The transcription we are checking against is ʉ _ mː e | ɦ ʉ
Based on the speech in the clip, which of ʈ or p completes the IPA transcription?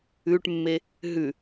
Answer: ʈ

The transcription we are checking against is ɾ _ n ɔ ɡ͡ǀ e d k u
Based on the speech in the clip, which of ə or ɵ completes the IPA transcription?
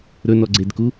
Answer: ɵ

